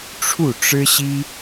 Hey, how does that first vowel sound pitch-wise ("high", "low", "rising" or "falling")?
falling